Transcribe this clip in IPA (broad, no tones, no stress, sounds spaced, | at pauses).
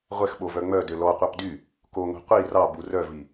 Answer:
ʁʷ ɛ x ɓ o v œ ŋ͡m œ d ø l ɔ qʷ ɑ p d y | k o ŋʷ i̤ qʷ i r ɑ b u r œ v i